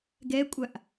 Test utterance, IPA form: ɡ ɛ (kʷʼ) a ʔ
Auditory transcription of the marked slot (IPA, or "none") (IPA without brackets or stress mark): kʷʼ